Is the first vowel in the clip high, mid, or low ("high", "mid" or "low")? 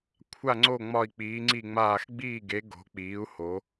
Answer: low